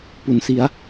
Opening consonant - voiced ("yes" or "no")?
no